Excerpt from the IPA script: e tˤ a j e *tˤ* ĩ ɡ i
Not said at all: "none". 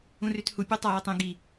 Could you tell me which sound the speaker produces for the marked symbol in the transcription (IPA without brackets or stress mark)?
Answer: tˤ